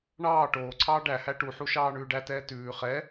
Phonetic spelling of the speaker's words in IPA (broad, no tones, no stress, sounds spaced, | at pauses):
ɳ ɑː ʈ oː ǀʰ ɑː ɖ æ h æ ʈ u ħ u ʃ ɑː ɳ ʉː ɖ æ t ɛː t ʉː χ ɛ